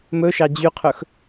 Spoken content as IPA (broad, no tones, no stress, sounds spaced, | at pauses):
m ɵ ʃ ɑ d͡ʑ y qʰ ɵ x